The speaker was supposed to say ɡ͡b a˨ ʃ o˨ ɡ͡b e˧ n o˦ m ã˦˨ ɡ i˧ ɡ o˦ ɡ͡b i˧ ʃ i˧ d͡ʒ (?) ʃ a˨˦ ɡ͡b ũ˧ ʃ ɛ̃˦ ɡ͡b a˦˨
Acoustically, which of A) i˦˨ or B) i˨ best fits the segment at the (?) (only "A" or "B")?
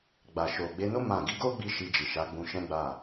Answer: B